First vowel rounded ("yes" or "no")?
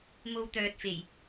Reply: yes